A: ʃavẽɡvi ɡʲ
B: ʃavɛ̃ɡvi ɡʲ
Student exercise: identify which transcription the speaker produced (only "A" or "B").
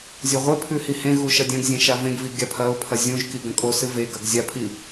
A